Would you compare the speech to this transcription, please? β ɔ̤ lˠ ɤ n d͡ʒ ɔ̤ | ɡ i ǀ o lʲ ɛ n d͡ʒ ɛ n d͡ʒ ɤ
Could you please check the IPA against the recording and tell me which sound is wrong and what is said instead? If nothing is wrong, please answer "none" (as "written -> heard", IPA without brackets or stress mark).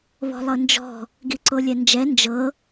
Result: none